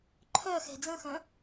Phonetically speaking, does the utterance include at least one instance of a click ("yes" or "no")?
yes